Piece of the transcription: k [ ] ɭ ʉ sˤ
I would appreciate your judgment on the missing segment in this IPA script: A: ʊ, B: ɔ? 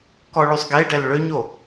B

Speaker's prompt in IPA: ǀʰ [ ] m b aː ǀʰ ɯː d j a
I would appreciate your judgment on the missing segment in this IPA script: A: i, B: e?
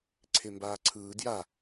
B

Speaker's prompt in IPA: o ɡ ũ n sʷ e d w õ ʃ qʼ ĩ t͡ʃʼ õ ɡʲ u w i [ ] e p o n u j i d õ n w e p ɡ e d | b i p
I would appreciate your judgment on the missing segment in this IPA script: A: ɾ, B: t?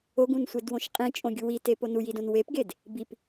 B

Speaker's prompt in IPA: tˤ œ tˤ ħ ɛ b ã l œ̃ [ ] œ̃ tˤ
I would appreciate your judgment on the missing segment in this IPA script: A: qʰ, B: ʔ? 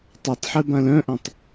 B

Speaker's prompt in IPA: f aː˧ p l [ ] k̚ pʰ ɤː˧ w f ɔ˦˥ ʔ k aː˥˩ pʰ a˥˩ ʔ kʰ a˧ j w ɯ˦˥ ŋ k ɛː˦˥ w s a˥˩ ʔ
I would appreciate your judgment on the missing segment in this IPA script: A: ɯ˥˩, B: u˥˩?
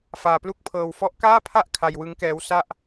B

